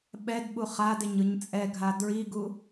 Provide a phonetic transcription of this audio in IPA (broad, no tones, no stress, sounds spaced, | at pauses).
ɓ ɛ d ɓ u χ a d e ɲ ɯ ɲ t͡sʼ ɛ ɡʱ a d ɹ i ɡ u